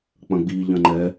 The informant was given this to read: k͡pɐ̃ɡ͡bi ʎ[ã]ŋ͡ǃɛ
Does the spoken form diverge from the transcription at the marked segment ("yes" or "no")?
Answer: yes